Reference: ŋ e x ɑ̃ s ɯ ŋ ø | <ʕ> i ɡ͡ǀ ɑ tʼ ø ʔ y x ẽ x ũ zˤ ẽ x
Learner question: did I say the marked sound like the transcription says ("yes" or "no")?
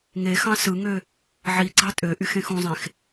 yes